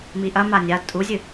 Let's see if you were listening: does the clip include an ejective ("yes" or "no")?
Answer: yes